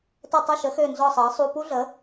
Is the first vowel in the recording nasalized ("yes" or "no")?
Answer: no